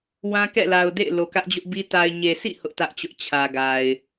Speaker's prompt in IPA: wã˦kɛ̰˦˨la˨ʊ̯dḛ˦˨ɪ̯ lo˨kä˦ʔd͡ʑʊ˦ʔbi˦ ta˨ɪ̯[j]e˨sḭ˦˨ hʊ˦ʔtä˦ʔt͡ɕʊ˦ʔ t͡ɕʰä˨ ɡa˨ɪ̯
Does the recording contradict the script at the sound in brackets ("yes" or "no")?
yes